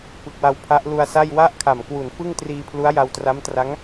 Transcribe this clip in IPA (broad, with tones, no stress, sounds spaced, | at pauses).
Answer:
p ɯ˨˩ k̚ w a˧ w pʰ a˦˥ ʔ l u˧ a̯ s a˥˩ j w a˦˥ ʔ kʰ a˨˩ m k w u˨˩ n f ɯ˥˩ ŋ t r iː˧ pʰ l u˦˥ a̯ j a˧ w t r a˦˥ m t r a˦˥ ŋ